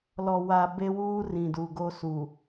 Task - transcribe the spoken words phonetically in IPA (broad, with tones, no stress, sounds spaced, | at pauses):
l ɔ˨ w a˨ b e˦ w uː˦ r ĩ˨ d u˨ ɡ o˦ s u˨